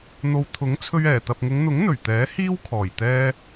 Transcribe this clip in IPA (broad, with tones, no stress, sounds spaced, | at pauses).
n̪ o˨ w t̪ʰ ʊ˨˥ ŋ t͡sʰ ɵ˧ ɥ ɛː˨˩ t̪ ɐ˨ p̚ ŋ ʊ˨˧ ŋ n̪ ʊ˨˥ ŋ n̪ ɵ˨˩ ɥ t̪ ɛː˨˥ h iː˥ w kʰ ɔː˨˩ j t̪ ɛː˧